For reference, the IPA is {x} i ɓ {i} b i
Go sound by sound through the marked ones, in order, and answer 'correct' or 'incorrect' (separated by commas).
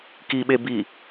incorrect, incorrect